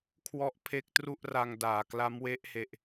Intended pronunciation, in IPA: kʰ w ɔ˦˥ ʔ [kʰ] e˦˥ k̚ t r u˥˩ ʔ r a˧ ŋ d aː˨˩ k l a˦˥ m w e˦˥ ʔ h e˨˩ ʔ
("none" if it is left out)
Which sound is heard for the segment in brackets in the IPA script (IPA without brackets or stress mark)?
pʰ